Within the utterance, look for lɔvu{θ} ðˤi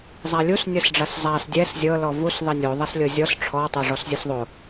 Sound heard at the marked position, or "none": s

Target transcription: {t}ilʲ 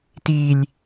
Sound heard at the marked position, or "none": t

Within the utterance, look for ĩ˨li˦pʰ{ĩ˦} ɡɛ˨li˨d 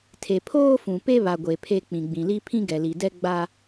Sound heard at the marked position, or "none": ĩ˦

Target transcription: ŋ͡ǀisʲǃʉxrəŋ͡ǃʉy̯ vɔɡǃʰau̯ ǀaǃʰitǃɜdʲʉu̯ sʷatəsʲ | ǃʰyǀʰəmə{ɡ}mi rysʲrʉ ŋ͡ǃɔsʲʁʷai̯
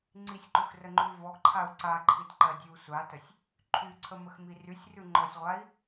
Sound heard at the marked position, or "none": x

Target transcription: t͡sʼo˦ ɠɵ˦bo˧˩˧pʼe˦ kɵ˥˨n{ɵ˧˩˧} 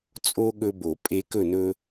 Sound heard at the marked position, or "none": ɵ˦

